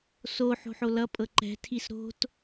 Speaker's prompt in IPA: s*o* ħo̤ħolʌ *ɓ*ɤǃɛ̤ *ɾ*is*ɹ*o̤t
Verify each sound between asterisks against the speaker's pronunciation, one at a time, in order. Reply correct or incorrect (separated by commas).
correct, incorrect, incorrect, incorrect